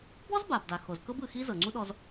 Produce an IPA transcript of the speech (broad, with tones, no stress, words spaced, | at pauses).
bɔ˥zba˩bda˩xo˩z kɤ˥bɯ˩ xi˥ zɤ˩ŋ͡ǀu˥ɗɔ˧z